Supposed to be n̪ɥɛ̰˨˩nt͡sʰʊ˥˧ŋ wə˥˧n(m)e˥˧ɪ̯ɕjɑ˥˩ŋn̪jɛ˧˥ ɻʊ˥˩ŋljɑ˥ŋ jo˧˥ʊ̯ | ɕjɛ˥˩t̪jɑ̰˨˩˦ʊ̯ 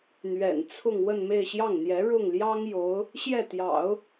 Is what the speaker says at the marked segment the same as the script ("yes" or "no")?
yes